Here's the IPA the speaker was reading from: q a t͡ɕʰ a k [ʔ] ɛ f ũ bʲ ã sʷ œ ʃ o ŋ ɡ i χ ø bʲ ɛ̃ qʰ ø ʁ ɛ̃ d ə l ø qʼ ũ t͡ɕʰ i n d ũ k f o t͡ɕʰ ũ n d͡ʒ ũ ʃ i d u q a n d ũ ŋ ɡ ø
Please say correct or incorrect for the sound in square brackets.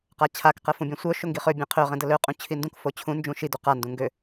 incorrect: q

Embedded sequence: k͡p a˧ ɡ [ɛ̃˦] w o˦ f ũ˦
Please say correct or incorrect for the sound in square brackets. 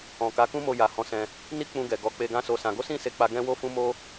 correct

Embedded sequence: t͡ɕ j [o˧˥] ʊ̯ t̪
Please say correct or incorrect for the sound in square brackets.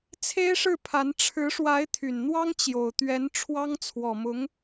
incorrect: o˨˩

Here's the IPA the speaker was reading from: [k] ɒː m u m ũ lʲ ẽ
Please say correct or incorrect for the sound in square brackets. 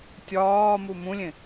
incorrect: tʲ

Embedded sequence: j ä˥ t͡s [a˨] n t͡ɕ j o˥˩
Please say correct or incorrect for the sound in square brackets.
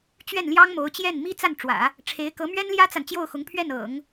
correct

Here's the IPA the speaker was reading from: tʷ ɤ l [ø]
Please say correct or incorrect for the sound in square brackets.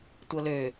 correct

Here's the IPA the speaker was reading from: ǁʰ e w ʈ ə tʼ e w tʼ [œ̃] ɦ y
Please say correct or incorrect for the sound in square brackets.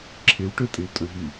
correct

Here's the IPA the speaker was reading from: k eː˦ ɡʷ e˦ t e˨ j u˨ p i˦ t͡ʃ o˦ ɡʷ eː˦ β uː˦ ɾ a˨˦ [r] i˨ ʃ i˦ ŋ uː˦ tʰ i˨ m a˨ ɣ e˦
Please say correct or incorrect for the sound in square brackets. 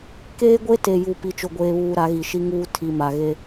incorrect: ɣ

